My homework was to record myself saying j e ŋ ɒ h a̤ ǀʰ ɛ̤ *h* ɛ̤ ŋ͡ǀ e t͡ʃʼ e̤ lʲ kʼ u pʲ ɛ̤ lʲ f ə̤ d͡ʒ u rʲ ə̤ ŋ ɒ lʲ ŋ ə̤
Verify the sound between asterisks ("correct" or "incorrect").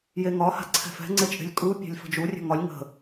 incorrect